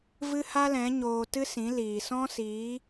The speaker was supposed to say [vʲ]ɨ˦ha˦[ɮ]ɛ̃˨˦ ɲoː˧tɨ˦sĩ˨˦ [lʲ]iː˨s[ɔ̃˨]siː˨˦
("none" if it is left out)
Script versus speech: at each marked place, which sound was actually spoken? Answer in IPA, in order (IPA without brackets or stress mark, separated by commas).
v, l, l, ɔ̃˦